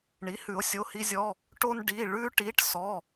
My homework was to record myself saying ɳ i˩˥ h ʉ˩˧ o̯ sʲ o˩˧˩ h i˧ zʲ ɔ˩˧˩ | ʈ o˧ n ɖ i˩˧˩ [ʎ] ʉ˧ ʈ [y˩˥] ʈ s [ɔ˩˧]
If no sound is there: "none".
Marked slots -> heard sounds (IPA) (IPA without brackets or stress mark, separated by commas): ɭ, i˩˥, ɔ˩˧˩